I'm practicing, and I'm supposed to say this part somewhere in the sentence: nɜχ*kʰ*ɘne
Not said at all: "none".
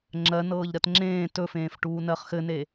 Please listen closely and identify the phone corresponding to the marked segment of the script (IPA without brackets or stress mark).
x